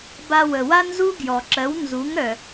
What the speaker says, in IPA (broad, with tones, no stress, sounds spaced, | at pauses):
b a˧ w ə˩ w a˥ n z u˥ ɡ j ɔ˩ ǁ ɜ˩˥ w n z u˩˥ ŋ ɾ œ˩